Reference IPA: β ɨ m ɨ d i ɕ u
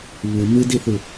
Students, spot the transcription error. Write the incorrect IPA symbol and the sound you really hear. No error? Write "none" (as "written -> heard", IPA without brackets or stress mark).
ɕ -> θ